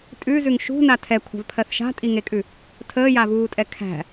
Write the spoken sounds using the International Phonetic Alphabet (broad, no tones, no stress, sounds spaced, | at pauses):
tʼ ʉ z ʉ ŋ ʃ ṳ n a tʰ ɛ kʷʰ a̤ v pʰ ɜ θ ʃ a̤ tʼ i ŋ e kʼ ʉ | tʰ əː j a v uː tʼ ɛ kʰ æ̤